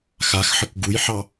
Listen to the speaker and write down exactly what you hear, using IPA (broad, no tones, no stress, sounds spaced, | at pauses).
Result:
x a x ħ ə k ɡ u j ħ ɑ